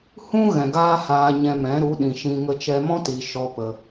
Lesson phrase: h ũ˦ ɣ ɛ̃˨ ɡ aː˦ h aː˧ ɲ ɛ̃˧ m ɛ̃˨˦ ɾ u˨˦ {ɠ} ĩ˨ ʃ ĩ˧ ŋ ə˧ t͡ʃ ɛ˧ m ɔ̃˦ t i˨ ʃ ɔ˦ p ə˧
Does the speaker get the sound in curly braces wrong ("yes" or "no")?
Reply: yes